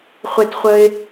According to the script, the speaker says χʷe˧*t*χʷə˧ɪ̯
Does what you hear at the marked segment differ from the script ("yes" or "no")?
no